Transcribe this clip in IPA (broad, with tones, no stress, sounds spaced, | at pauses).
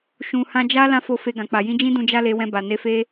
ʃ ũ˨ h ã˧ d͡ʒ a˦ l ã˦ f o˧ f e˧ ɡ ã˨ k͡p a˨ j ĩ˧ d͡ʒ ĩ˦ d ũ˧ d͡ʒ a˦ l e˧ w ɛ̃˧ b a˨ n e˧ f e˦